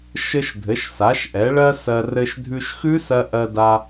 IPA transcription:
ʃ ɘ˧ ʃ dʱ ɘ˩˧ ʃ s a˩˧ ʃ ʔ ɛ˩˧ ɭ ɜ˧ s ɜ˧ r ɘ˧ ʃ dʱ ʉ˧ ʃ x ʉ˦˥ s ɜ˧ ʔ ɜ˧ d a˧

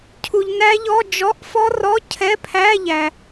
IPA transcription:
cʰ u˨ ʎ n æ˦˥ ʎ ɔ˧˥˧ d͡ʒ ɔ˧˥˧ ʔ f ɔ˦˥ r ɔ˧˥˧ cʰ ɛ˧˥˧ pʰ æ˧˥˧ ʎ æ˨

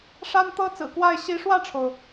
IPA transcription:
ʂ a˥ n t̪ ɤ˥ t͡s ɹ̩˨˩ k w a˥˩ ɪ̯ ɕ i˧˥ ʂ w ä˥˩ ʈ͡ʂʰ o˩ ʊ̯

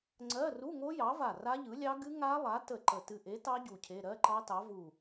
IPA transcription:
ŋ͡ǀ ɜ˧˥˧ r u˧˥˧ ŋ o˦˥ j ɑ˨˥ v a˧˩ r a˦˥ ʎ ɯ˨˥ lʲ ɑ˦˥ ɡ ɨ˦˥ ŋ a˦˥ lˠ a˨˥ t ə˧˩ ǃ ə˧˩ t ɨ˧˩ ʔ e˨˥ t ɑ˦˥ ɟ u˧˩ cʰ e˧˥˧ ɾ ɜ˧˥˧ ǃ ɑ˦˥ t ɑ˨˥ v u˧˩

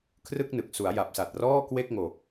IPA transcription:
kʰ r ɯ˥˩ k̚ n ɯ˨˩ k̚ s u˩˦ a̯ j a˨˩ p̚ s a˨˩ t̚ r ɔː˥˩ k w e˥˩ k̚ ŋ o˨˩ k̚

